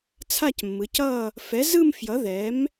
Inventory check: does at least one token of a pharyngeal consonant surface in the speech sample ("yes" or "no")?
no